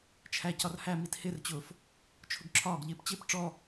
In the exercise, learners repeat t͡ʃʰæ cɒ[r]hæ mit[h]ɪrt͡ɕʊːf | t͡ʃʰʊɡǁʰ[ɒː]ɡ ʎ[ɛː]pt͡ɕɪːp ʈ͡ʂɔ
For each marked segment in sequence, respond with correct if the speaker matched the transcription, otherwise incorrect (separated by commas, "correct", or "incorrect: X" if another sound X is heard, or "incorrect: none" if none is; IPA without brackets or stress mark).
correct, correct, correct, incorrect: ɪː